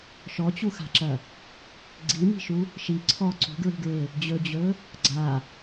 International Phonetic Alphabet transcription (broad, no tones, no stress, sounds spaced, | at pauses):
ʃ ɔ t͡ɕ u x a̤ ǁ ɐ | ɡ͡ǀ i m i̤ ʃ u | ʃ i ǀʰ ɔ ǀ ṳ ɡ ɹ i̤ ɡ ɹ e | d͡ʑ ɵ d͡ʑ ɵ | ɡ͡ǀ a